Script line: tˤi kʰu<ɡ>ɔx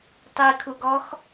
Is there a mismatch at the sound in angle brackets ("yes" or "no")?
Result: no